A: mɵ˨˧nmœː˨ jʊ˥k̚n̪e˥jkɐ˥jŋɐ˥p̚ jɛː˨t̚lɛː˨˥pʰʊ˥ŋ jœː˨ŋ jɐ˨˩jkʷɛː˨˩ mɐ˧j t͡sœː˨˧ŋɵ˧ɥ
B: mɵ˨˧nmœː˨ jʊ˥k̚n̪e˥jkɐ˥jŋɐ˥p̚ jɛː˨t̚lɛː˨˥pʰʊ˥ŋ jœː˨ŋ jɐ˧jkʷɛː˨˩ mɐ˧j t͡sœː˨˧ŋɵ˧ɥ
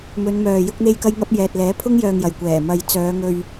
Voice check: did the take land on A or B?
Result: A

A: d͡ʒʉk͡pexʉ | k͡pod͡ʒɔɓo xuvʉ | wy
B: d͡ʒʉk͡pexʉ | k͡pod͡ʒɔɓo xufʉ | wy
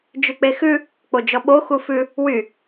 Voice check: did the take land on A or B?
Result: B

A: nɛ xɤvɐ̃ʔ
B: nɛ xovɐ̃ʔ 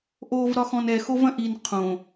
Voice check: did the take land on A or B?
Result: B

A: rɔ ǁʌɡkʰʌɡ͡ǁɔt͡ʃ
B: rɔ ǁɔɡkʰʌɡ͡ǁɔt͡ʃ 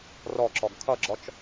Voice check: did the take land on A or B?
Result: B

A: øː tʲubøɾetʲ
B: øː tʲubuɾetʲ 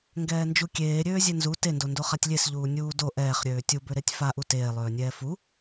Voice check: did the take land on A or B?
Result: A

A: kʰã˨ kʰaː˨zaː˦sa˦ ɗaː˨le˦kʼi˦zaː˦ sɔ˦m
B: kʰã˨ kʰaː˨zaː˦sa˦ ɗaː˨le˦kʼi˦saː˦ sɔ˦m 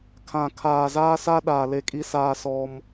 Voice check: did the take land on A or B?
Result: B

